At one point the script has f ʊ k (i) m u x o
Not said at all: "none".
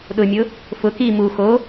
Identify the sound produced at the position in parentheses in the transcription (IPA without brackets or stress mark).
i